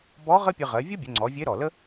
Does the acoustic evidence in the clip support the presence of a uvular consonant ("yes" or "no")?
yes